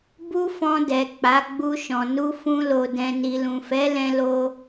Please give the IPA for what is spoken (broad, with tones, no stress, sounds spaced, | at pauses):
b u˦ f ɔ̃˧ d ɛ˨ k͡p a˨˦ ɡ͡b u˧ ʃ ɔ̃˨ n u˧ f ũ˧ l o˨ d ɛ̃˨ n i˨ l ũ˨ f ɛ˨˦ l ɛ̃˧ l o˧